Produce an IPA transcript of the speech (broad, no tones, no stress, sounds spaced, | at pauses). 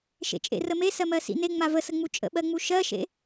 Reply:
ʃ ḛ t͡ʃʼ ḛ r ə m e s ɜ m ɜ s ḭ n e ŋ͡m a v ə s ə ŋ͡m u t͡ʃʼ ə̰ ɓ ɜ ŋ͡m u ʃ ɜ ʃ ḛ